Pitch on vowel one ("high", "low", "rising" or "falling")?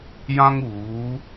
high